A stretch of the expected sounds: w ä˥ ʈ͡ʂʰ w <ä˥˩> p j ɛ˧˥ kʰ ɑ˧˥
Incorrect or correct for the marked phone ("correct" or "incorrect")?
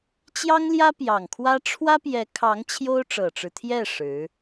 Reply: incorrect